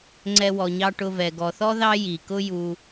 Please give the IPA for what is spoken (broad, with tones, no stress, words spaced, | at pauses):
ŋ͡ǀɛ˧wɔ˨ɲɑ˧ ʈʊ˧vɛ˨ ɡɔ˨θɔ˦ ðɑ˦ji˨kʊ˦ ju˧